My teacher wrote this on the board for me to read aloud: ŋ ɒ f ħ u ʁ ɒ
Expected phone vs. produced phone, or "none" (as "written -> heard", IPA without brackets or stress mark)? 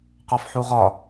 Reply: ŋ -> q